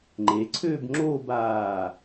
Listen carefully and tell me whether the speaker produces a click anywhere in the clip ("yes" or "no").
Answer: yes